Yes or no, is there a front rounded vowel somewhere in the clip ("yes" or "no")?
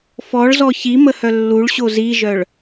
yes